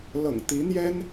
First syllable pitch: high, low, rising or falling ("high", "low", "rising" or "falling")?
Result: low